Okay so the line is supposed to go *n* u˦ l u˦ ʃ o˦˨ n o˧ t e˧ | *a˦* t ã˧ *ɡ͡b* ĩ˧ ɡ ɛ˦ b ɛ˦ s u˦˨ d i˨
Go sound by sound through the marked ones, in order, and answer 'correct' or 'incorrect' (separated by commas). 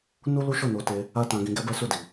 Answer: correct, correct, incorrect